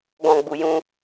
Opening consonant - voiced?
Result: yes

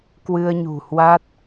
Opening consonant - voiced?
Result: no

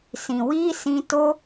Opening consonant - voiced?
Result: no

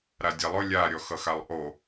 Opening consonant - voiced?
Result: yes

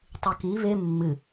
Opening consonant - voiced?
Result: no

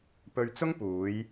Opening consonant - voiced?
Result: no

